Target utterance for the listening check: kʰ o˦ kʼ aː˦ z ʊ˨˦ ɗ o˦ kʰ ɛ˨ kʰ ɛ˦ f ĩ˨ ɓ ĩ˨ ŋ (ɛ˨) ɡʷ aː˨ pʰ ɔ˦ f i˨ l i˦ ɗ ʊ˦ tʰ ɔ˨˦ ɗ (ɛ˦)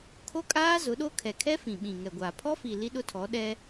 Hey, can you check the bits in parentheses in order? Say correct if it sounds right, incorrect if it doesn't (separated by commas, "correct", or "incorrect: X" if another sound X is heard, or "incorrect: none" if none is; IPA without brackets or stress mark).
correct, correct